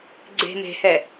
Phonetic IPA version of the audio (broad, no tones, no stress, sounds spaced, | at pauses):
ɡ͡ǀ e̤ m e̤ h ɛ